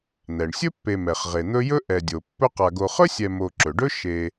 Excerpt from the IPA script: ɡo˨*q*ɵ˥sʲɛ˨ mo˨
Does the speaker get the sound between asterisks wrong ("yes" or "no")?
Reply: yes